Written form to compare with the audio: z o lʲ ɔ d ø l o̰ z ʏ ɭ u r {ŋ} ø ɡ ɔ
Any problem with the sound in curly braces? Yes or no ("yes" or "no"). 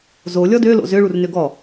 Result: yes